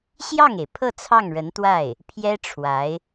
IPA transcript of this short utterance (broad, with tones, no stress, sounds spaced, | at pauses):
ɕ j ɑ˥˩ ŋ e˩ ɪ̯ pʰ ɤ˥˧ t͡sʰ ɑ˥˩ ŋ ɻ ə˧˥ n t̪ w a˥˩ ɪ̯ | pʰ j ɛ˥ ʈ͡ʂʰ w a˧˥ ɪ̯